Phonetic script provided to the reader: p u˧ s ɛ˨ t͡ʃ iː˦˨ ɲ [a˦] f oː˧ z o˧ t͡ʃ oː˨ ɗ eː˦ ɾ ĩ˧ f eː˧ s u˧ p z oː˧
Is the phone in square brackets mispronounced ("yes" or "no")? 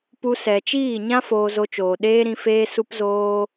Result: yes